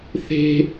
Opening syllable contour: high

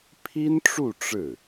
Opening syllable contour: high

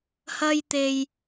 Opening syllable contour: high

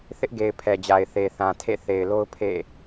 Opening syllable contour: high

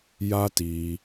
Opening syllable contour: high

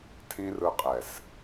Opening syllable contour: high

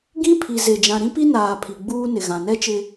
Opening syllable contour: high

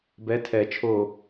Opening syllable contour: rising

